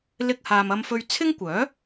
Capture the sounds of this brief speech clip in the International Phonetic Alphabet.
l ɪ˧ k̚ h aː˨ m ɐ˧ m f ɵ˧ ɥ t͡sʰ ɪ˥ ŋ kʷ œː˨˥

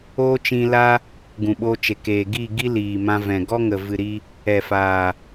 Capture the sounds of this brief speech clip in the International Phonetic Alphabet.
oː˦ t͡ʃ ĩ˧ l a˦ | ɡ ũ˨ ɓ o˧ t͡ʃ e˨ k eː˨ ɡ i˦˨ ɡ i˦ l iː˨ m ã˧ v ɛ̃˨ ɡ ɔ˦ ŋ ə˨ v ɨ˨ ɾ i˧ | ɛ˨ f a˨

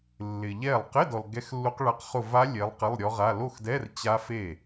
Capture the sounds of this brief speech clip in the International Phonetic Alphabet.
lː ɪ˨ ʎ ɛ˥˩ lˠ q ɪ˧˥˧ d ɔ˨ l ɡ ɛ˦˥ x lː u˦˥ q ɭ a˦˥ q χ ʊ˥˧ v a˦˥ lʲ e˨˦ lˠ q ɪ˧˥˧ lˠ ɾʲ ɔ˦˥ ʁ a˧˥˧ l o˥˩ x d ɛ˧˥˧ r t͡ɕ a˦˥ f e˥˩

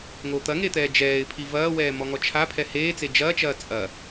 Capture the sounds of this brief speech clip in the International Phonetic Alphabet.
ŋ o t̪ ɐ ŋ e t̪ ɛː d͡ʒ ɛː ɪ̯ pʰ i v ɐː w ɛː m ɔ ŋ ɔ t͡ʃʰ a pʰ ɛ h eː t͡s e d͡ʒ ɐː t͡ʃ ɐː t͡sʼ ɐ

